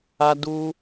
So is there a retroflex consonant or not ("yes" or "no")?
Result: no